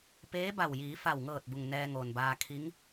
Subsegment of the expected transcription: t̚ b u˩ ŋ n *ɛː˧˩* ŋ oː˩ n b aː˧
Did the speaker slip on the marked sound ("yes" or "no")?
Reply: yes